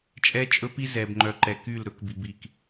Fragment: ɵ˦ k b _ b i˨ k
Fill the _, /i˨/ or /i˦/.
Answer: i˨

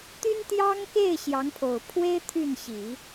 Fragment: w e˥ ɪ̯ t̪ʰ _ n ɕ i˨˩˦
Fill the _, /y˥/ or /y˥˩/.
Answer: y˥˩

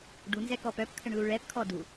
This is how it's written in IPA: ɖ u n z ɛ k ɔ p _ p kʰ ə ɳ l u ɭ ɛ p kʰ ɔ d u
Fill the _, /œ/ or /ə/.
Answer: œ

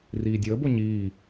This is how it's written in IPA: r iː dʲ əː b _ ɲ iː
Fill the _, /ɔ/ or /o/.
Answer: o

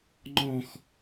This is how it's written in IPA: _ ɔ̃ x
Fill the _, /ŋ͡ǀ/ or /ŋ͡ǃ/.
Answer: ŋ͡ǃ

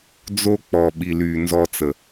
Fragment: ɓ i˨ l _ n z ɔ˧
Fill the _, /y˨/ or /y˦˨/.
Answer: y˨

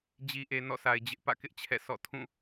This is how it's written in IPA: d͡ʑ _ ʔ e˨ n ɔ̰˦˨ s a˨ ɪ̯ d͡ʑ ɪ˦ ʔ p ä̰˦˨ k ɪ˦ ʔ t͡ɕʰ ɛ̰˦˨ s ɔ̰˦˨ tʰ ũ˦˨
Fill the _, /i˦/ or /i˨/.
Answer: i˨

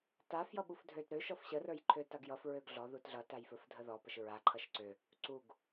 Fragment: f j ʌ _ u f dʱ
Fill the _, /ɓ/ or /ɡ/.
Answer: ɓ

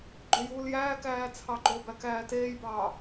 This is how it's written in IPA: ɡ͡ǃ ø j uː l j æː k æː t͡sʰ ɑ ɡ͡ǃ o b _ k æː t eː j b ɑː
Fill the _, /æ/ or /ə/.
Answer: æ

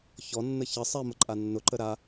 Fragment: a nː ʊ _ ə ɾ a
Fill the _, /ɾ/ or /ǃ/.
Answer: ǃ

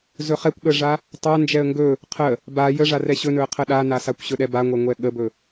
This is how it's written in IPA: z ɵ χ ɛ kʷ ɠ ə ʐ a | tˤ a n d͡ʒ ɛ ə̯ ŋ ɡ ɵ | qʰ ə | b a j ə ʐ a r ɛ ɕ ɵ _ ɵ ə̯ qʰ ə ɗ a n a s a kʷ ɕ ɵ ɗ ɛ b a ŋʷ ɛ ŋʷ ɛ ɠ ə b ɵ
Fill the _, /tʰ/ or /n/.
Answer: n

